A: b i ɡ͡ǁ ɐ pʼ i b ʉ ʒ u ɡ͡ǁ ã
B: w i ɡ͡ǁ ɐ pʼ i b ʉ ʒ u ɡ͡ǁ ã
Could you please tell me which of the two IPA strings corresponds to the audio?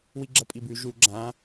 B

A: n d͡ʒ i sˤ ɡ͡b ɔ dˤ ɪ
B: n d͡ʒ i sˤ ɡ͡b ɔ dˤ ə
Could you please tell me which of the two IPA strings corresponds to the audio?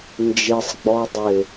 A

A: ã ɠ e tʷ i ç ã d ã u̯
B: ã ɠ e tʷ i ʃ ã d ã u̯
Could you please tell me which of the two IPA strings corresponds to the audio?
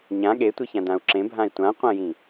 A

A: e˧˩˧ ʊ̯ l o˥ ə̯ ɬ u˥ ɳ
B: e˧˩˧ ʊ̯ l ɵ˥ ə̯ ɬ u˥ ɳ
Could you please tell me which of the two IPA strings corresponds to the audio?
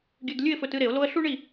A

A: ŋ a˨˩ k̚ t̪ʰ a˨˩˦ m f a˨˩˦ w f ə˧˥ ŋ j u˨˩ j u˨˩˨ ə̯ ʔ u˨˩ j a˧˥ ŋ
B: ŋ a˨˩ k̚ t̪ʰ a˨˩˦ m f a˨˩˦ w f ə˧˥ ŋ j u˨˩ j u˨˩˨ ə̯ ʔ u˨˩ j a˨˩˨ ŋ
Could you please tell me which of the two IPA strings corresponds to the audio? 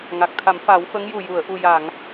B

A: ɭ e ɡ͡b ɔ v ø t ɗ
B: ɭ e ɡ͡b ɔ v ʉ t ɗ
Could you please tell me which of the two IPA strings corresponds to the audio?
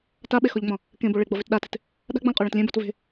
B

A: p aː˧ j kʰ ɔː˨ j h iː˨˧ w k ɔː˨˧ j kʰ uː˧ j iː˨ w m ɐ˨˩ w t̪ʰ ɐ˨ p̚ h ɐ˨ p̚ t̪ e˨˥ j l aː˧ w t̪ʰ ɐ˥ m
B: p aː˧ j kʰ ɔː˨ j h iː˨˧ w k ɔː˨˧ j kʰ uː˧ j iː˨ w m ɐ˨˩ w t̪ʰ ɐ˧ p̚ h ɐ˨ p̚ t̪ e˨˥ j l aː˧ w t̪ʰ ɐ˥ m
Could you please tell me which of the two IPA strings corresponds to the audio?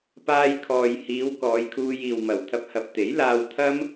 B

